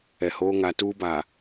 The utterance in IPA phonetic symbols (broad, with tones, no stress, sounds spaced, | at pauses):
ɛ˨ h oː˦ ŋ a˨˦ t uː˦ b aː˨